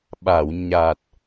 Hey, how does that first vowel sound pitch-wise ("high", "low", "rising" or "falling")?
low